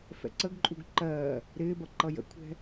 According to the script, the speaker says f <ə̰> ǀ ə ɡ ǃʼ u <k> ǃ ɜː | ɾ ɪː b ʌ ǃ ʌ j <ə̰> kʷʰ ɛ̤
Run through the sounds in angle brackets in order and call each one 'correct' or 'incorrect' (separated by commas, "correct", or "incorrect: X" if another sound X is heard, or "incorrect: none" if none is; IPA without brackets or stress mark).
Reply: incorrect: ɛ̰, incorrect: ɡ, correct